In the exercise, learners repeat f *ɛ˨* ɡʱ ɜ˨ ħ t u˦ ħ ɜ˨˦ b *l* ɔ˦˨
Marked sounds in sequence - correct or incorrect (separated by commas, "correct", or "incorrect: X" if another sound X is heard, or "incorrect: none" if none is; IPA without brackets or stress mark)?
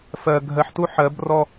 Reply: incorrect: ɜ˨, incorrect: r